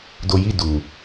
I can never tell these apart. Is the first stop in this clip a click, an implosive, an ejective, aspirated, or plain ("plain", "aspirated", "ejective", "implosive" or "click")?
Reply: plain